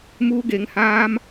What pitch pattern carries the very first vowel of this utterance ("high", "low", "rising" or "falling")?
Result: high